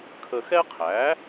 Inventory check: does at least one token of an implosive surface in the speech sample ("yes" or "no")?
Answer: no